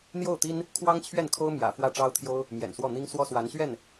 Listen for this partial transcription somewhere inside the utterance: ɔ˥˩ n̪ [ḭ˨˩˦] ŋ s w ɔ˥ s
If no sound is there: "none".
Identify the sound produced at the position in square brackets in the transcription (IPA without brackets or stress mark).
i˥